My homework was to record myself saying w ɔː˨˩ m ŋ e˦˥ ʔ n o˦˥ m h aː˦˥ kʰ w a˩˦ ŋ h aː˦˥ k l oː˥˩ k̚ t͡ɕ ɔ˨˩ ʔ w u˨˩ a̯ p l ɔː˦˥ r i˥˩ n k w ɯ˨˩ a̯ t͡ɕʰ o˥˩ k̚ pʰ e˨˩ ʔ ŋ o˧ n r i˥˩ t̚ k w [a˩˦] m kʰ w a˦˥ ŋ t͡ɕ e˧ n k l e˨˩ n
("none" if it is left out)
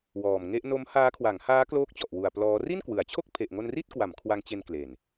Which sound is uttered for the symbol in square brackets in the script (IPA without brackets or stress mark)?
a˩˦